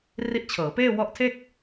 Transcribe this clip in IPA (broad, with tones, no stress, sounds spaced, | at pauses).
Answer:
r i˦˥ ʔ t͡ɕʰ ɤː˩˦ p eː˥˩ w ɔ˦˥ ʔ tʰ e˥˩ k̚